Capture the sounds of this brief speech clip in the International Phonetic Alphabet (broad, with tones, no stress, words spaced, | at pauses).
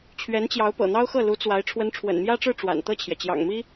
t͡ɕʰɥɛ˧˥nt͡ɕjɑ˧˥ʊ̯ pɤ̰˨˩n̪ɑ˥ʊ̯xɤ˥˩ lu˧˥t͡swa˧˥ɪ̯ ʈ͡ʂʰwə˧˥nʈ͡ʂʰwə̰˨˩nmjä˥ʈ͡ʂɻ̩˥˩ ʈ͡ʂwa̰˨˩nt̪ɤ˥˩t͡ɕʰjɛ˩ t͡ɕjɑ̰˨˩ŋmi˥